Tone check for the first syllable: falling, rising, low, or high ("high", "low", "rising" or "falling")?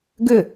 falling